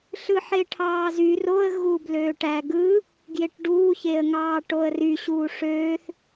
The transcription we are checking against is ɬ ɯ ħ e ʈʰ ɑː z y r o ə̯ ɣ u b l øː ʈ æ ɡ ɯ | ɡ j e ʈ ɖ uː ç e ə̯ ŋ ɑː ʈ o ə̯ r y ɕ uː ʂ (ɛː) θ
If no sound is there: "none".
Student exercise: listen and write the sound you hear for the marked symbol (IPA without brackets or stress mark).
øː